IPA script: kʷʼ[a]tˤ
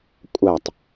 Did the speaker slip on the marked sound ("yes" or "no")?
no